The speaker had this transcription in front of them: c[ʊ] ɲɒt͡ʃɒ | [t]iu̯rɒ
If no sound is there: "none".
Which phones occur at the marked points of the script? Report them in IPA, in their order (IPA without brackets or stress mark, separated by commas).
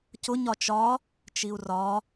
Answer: ʊ, t͡ʃ